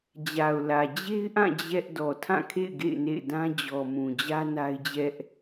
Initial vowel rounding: unrounded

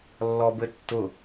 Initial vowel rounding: rounded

